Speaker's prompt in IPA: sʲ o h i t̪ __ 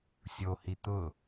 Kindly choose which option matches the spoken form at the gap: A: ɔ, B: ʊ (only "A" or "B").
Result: B